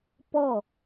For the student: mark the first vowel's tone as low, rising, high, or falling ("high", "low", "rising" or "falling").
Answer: falling